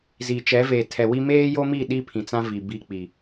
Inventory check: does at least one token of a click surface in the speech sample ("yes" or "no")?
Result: no